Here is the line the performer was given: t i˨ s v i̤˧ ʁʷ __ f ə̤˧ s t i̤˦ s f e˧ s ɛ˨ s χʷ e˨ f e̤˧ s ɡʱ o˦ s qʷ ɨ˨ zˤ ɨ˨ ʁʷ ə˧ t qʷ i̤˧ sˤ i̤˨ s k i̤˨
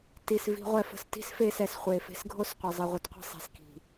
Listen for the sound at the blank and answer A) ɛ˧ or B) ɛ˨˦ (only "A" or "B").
A